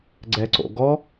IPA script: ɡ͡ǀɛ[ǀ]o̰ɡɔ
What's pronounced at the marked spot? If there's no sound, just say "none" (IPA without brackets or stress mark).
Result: ǀ